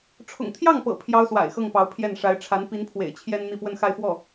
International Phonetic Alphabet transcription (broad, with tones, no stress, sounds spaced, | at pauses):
ʈ͡ʂʰ ʊ̰˨˩ ŋ t̪ʰ j ɑ˥˩ ŋ p ɤ̰˨˩ pʰ j ɑ˥ ʊ̯ s w a̰˨˩ ɪ̯ x ɤ˥˩ ŋ p ɑ˧˥ ʊ̯ pʰ j ɛ˥˩ n ʂ a˧˥ ɪ̯ ʈ͡ʂʰ a˧˥ n p i˧˥ n pʰ w ḛ˨˩ ɪ̯ t͡ɕʰ j ɛ˥ n n̪ i˥˧ p w ə˥˧ n x a˥˧ ɪ̯ f w ɔ˥˩